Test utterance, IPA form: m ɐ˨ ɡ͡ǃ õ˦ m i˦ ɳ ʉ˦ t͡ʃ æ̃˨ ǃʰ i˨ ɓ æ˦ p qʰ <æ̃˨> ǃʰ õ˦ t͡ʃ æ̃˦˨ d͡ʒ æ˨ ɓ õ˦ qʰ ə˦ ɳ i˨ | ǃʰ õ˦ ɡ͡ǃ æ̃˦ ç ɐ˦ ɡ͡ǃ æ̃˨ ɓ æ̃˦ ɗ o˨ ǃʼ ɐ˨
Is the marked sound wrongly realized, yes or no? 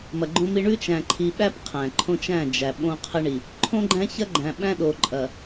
no